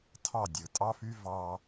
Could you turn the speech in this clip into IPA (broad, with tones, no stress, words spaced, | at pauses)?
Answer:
tʰɑ˥˩dʲɯ˩tʼɑ˥fy˥ vɑ˧